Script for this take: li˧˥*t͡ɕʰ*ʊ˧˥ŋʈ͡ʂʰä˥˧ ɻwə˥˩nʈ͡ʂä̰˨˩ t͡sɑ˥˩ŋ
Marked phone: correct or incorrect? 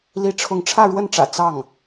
incorrect